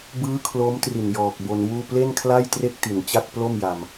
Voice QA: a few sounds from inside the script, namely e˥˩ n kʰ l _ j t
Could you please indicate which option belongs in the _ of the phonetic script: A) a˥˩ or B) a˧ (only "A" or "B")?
A